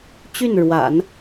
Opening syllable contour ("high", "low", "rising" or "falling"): falling